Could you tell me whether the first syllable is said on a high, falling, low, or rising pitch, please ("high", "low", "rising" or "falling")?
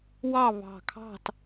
falling